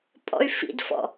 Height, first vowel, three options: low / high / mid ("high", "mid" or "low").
mid